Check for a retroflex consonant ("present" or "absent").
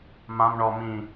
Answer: present